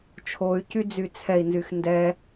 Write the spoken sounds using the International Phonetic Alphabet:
t͡ʃʰoy̯cy d͡zyt͡sʰɛi̯ nzyxndɛ

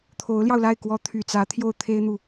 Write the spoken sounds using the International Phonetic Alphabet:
t̪ʰo˧˥ʊ̯ljɑ˧ʊ̯la˥˩ɪ̯ kwɔ˧˥ t̪ʰy˨˩t͡sä˧˥ t̪ʰjo˥˩ʊ̯t̪ʰe˥ɪ̯n̪u˨

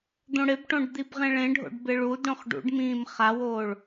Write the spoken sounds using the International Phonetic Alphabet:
d̪õɽɪbʈõɖ d̪ibʁẽɭẽɖʱo̰ɖ bɪɭudɽõχ ɖṵɖmĩːm χawoːɭ

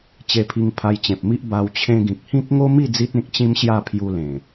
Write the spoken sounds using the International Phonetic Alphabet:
t͡ɕe˧pʰi˧ŋ pʰa˧jt͡ɕẽ˨p̚mi˦ʔ ba˧w t͡ɕʰẽ˧ɡĩ˨k̚hĩ˦k̚ ŋo˦mi˥˧ d͡zi˦t̚ẽ˦k̚t͡ɕĩ˦mɕja˥˧ pʰju˧ lẽ˨˩

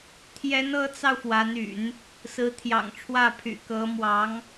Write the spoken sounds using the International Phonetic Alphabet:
t̪ʰjɛ˧˥nɤ˧˥t͡sɑ˧ʊ̯ fwa˧˥ny̰˨˩˦n | sɹ̩˧˥t̪ʰjɑ̰˨˩ŋʈ͡ʂʰwä˥˩pʰy̰˨˩ kɤ˧˥mwɑ˧˥ŋ

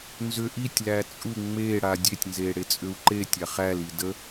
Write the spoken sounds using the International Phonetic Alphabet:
nzʏ ʔitʲlæ t͡sʼu ŋ͡meɽa dʲetʲnze ɽet͡sʼʏu̯ǃetʲa χæli də

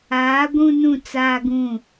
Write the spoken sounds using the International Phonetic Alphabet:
aː˨˦ ɡʷũ˦nũ˦˨t͡saː˦ ɡũ˦˨

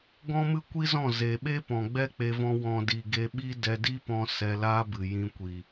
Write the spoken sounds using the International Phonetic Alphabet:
ɡɔ̃˦mɨ˦kʷi˦zɔ̃˦˨ ze˨ɓe˦ pɔ̃˨ɡ͡bɛ˦k͡pe˧vɔ̃˧ wɔ̃˨di˨ ɡe˧ɓi˦ dɛ˧di˦pɔ̃˧ sɛ˧laː˦bɨ˨ jĩ˧kʷi˨

